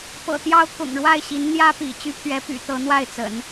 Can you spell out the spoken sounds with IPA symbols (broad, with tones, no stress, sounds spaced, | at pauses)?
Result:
p ɤ̰˨˩ t̪ j ɑ˥ ʊ̯ k ʊ̰˨˩ ŋ ɻ w a˥˩ ɪ̯ ɕ i˧˥ n n̪ j ä˥ p ḭ˨˩ t͡ɕ y˧˥ pʰ ɥ ɛ˧˥ p y̰˨˩ t̪ ɤ˧˥ n̪ w a˥˩ ɪ̯ t͡s ə̰˨˩˦ n